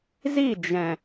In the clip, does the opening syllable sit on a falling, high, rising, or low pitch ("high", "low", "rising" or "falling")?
falling